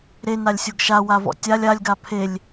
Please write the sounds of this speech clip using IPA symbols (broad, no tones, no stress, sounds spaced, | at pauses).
ɾ e n a lʲ sʲ o ɡ ʃ a w a v ɔ̰ tʲ a lʲ a lʲ ɡ a pʰ e lʲ